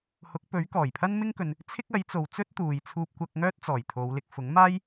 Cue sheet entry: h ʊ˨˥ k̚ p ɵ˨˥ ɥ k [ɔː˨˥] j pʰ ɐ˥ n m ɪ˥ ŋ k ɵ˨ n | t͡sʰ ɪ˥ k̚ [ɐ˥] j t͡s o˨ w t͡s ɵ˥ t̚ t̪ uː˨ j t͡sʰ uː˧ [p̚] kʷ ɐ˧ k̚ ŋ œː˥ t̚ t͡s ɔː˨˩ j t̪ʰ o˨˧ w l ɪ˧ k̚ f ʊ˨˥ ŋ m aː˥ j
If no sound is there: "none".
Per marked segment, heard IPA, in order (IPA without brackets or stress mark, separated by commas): ɔː˨˩, ɐ˨˥, p̚